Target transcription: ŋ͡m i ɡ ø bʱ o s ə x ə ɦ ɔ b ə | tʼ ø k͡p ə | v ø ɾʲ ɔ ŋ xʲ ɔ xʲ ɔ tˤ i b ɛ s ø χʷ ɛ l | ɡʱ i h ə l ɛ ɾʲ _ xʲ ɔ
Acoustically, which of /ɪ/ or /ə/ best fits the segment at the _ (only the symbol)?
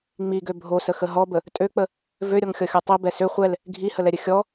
ə